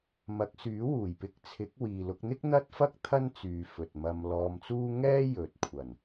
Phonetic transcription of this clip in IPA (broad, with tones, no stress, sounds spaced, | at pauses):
m ɐ˨˥ k̚ s yː˨˥ w uː˨˩ j p ɪ˧ k̚ t͡sʰ ɪ˨˥ k̚ w iː˨ l ʊ˧ k̚ n̪ ɪ˥ k̚ n̪ ɐ˥ t̚ f ɐ˥ k̚ t̪ʰ ɐ˥ n t͡s yː˨ f ɵ˨ t̚ m ɐ˧ m l ɔː˧ m t͡s uː˥ ŋ ɛː˥ j ɵ˨ t̚ kʷʰ ɐ˨˩ n